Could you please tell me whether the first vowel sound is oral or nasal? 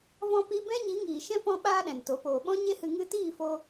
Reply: nasal